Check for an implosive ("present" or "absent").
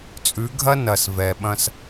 present